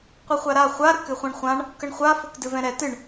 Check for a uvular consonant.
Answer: present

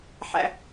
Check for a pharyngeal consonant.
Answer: present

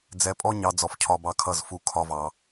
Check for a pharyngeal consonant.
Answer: absent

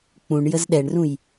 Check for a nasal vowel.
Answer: present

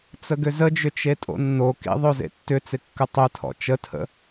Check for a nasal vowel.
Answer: absent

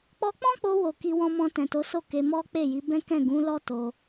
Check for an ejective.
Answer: absent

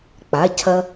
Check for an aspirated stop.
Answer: present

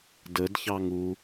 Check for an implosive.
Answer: absent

